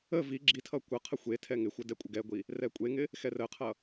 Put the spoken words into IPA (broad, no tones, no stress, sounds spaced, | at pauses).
ə v i ɡ͡ǁ i tʰ ʌ kʷ ʌ qʰ ə xʷ e tʰ ɛ ŋ ɪ xʷ ə d ɛ kʷʼ ə ɡ ɛ ɡʷ i | r ɛ kʷʼ e ŋ ɪ | x ɛ r ə qʰ ʌ